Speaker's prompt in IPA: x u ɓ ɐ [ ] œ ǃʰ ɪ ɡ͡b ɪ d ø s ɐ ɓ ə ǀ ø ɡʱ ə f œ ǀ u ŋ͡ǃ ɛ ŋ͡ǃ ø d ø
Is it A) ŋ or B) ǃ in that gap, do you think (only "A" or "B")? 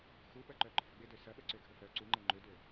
B